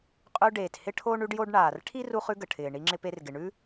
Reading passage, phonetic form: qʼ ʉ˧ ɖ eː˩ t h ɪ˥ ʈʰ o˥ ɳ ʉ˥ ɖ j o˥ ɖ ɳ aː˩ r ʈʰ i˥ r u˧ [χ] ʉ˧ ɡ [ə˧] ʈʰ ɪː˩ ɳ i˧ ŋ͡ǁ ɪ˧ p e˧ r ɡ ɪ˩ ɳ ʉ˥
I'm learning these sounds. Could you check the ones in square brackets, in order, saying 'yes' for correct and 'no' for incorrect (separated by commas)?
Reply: yes, no